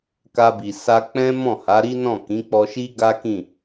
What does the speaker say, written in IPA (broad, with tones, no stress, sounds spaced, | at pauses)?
k a˧ b i˨ s a˧ k͡p ɛ̃˦ m ɔ̃˦˨ h a˨˦ ɾ i˦ n ɔ̃˦˨ k ĩ˨˦ k͡p ɔ˧ ʃ i˦ ɡ a˦ k ĩ˦˨